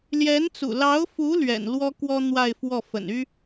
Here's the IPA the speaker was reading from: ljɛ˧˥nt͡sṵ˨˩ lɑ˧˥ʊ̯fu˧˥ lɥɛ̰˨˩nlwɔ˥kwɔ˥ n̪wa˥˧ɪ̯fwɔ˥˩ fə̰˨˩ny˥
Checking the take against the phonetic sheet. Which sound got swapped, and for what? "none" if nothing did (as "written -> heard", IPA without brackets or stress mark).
none